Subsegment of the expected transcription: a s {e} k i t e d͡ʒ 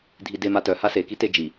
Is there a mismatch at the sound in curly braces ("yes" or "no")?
no